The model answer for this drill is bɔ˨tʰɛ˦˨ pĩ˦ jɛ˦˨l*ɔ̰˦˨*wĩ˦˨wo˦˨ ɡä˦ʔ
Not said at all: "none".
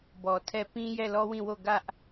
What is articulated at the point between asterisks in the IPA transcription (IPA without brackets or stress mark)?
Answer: ɔ˦